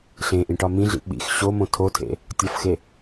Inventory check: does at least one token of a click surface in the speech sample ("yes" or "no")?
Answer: no